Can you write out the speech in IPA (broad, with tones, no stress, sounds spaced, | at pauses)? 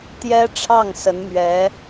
t̪ j ɛ˥ ʈ͡ʂʰ ɑ˥˩ ŋ s ə˧˥ n m ɥ ɛ˧˥